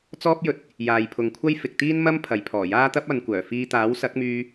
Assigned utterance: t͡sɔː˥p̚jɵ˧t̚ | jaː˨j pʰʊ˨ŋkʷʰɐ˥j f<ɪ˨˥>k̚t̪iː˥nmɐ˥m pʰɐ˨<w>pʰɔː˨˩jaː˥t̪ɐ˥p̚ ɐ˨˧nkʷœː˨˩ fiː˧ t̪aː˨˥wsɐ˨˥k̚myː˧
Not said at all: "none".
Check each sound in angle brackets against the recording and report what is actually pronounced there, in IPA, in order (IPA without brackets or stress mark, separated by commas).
ɪ˨, j